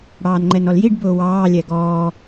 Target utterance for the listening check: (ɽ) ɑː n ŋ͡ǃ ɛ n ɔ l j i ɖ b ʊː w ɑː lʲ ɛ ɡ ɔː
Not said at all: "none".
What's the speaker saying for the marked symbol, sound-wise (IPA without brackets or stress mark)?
ɽ